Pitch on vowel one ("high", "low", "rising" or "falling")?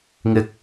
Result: high